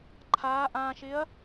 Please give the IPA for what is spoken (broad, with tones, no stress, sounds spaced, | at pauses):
ǃʰ aː˧˥ ʔ ãː˧ ʃ ɪ˧˥ ɐ̯